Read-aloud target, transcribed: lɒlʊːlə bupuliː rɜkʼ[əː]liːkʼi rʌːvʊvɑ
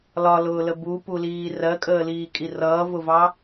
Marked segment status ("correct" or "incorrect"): correct